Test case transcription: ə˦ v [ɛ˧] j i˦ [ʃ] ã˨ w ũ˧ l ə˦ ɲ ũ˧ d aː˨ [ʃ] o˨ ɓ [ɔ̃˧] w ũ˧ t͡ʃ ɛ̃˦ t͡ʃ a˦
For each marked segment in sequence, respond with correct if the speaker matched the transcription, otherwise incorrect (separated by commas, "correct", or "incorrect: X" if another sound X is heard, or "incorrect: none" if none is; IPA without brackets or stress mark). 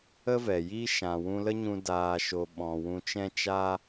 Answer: incorrect: ɛ˨, correct, correct, correct